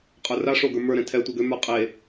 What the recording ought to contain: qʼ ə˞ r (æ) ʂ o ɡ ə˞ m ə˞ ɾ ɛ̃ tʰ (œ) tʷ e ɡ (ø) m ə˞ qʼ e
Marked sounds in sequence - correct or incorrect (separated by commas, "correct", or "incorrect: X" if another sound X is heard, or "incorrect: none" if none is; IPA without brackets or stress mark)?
incorrect: a, incorrect: ɛ, correct